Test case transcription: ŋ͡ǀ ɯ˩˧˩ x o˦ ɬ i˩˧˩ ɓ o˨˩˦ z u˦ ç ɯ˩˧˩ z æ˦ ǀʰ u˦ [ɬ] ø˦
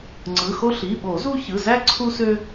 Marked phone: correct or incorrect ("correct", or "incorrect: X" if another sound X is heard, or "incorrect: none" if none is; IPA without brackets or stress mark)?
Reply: incorrect: s